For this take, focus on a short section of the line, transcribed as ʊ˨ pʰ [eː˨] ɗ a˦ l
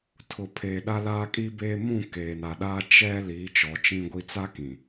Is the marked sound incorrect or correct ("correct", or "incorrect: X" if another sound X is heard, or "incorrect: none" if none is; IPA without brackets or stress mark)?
correct